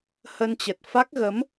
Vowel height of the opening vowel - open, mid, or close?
mid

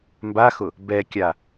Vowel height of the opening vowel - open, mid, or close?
open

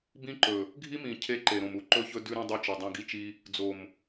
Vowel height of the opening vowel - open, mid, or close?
close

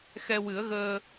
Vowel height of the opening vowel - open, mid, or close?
mid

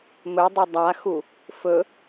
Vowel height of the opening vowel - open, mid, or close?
mid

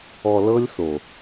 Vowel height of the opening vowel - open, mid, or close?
mid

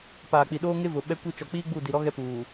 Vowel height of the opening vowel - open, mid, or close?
open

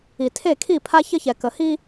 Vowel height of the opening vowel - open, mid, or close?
close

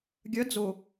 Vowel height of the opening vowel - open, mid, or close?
open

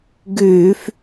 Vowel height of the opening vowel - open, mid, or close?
close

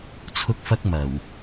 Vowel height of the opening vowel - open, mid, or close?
close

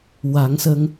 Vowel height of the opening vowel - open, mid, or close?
open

